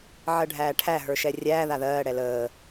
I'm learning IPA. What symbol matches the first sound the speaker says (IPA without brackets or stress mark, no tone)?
ʕ